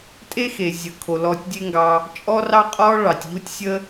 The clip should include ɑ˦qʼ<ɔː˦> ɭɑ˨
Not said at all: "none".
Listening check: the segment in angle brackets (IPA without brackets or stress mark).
ɔː˦